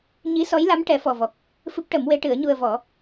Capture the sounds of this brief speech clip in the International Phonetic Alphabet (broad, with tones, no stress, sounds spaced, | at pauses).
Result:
ɲ i˧˥ s ɔ˧˥ j l a˧˥ m ʈ ɛ˨˩˦ f ɔ˨˩ v ɔ˨˩ k̚ | f ɨ˦˥ p̚ ʈ ə˨˩˦ m w e˧˥ ʈ ɨ˨˩˦ ə̯ ɲ u˧ ə̯ v ɔ˨˩˦